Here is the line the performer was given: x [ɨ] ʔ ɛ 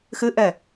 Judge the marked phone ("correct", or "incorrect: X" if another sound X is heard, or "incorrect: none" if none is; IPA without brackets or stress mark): correct